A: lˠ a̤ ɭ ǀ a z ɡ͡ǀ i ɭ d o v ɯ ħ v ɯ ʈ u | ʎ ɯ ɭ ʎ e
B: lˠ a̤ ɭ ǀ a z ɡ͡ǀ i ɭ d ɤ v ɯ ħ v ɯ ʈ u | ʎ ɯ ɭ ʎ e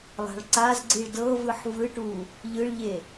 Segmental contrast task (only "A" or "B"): B